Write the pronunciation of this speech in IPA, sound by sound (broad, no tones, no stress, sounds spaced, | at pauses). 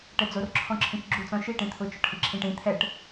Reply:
ʈ ɛ d͡z o r ǁʰ ɔ̃ ǁʰ ĩ t͡ʃ ɡ͡ǁ u t͡s ɔ̃ ʃ i ʈ ĩ t̪ʰ ʊ t͡ʃ ɔ ʈ h i ǁʰ ĩ ʈ ĩ t̪ʰ ɛ ʈ